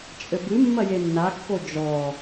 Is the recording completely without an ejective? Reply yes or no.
no